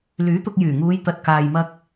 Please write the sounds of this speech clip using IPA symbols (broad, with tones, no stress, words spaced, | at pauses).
lyː˨˥t̪ʊ˧k̚jyː˨˩ ŋuː˨˧jt̪ɐ˨t̚kaː˨j mɐ˧k̚